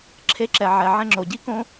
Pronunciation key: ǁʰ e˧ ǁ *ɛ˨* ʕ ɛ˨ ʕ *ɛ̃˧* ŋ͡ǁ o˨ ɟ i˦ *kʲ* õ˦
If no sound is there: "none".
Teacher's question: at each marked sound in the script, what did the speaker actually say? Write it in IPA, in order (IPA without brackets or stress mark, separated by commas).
ɛ˨, ɛ̃˧, k